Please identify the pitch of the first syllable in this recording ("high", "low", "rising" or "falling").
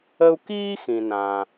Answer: high